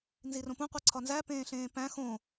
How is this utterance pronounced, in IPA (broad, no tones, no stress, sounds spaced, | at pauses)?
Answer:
n z i r õ p ũ qʷ i ǀʰ ɒ n z æ p ẽː ɬ ẽː p æ̃ x õ